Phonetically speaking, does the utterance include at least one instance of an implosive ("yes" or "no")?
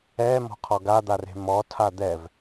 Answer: no